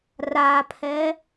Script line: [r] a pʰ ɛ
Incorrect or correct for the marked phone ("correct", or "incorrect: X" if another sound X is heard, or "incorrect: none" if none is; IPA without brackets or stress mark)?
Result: correct